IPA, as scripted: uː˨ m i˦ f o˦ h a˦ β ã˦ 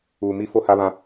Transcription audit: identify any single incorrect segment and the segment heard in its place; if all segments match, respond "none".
none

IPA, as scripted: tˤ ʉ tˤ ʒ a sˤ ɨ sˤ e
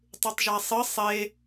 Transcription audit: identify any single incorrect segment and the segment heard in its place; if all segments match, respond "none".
none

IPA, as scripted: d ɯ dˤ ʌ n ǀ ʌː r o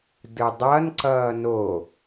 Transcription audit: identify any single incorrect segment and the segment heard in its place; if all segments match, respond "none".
r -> n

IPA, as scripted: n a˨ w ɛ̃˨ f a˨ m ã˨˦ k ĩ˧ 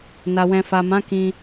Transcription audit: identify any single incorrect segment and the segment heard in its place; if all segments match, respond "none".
none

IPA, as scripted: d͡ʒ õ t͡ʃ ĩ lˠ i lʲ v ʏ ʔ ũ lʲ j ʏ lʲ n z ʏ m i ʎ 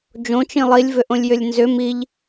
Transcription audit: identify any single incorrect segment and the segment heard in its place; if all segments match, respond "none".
ũ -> õ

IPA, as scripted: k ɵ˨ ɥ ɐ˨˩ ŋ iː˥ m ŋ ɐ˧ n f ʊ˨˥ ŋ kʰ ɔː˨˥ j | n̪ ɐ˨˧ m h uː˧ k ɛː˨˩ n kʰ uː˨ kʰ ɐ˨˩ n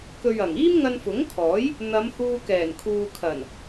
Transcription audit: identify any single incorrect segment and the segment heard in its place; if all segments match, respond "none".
none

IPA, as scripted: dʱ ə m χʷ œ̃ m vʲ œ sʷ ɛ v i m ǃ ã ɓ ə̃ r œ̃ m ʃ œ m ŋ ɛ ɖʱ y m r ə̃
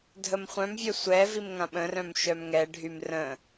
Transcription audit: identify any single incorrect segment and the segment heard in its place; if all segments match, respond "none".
ǃ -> ŋ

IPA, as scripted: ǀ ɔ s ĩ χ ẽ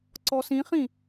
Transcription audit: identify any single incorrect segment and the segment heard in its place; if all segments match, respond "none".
ẽ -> ĩ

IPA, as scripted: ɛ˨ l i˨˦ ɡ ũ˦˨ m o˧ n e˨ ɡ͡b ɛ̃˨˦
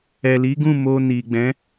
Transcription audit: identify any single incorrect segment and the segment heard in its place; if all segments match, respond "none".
e˨ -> i˨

